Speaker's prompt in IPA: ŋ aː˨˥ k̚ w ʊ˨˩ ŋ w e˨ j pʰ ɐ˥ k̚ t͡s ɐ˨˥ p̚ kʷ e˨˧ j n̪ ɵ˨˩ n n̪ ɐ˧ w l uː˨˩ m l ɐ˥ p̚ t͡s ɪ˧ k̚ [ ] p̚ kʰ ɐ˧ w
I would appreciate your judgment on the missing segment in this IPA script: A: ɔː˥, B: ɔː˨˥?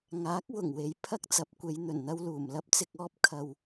A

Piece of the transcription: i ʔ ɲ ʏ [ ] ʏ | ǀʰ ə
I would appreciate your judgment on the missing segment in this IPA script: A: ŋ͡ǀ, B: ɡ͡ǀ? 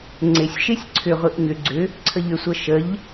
B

